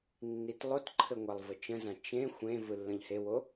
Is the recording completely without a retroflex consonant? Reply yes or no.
yes